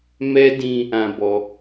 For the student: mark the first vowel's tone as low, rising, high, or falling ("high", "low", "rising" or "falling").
high